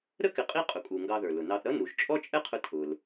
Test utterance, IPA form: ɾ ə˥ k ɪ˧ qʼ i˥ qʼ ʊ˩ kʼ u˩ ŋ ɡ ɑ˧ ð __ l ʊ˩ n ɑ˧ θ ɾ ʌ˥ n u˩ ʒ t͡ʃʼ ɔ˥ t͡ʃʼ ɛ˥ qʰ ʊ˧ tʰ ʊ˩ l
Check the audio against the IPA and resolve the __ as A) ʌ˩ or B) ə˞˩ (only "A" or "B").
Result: B